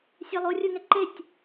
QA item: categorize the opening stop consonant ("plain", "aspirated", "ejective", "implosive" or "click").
click